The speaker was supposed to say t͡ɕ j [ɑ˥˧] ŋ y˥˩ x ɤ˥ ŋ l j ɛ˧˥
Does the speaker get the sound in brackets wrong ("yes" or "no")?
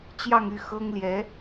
no